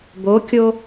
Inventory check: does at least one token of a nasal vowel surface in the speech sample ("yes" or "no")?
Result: no